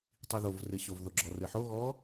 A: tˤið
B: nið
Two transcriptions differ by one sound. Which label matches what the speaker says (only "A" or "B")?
A